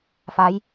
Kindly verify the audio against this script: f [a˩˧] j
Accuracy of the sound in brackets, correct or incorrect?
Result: correct